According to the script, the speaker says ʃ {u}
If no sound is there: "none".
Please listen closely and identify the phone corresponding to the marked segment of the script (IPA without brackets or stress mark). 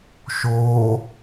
o